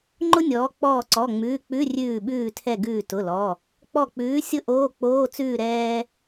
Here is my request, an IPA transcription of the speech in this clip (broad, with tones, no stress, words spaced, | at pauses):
ŋ͡ǃʊ˥nʲɔː˨˦ k͡pɔː˧˩ǀɔ˩˧˩ŋ͡mʉː˩˧˩k͡pʉ˧˥˧ rʲʉː˧˩ɓʉː˧˩tʰɛ˧˩ ɡʉː˧˩tʊ˩˧˩lɔ˩˧˩ | k͡pɔ˧˩k͡pʉː˨˦ sʲʊ˥ ʔoː˧˥˧ k͡poː˧˥˧t͡sʉː˥˨ ɾɛː˥